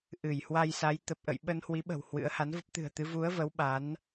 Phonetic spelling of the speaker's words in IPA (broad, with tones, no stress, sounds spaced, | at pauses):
ʔ ɨ˧˩ j h w a˧ j s a˨˦ j t̪ ə˨˩ p̚ ʔ ə̰˧˨ j ɓ ə˧ n h w i˨˦ ɓ ə̤˨˩ w h w ɨ̰˧˥ ə̯ h a˨˦ n v ə˦˥ p̚ t̪ ɨ̤˨˩ ə̯ t̪ ɨ˨˦ v u˨˦ ə̯ v ə˨˦ w ɓ a˨˦ n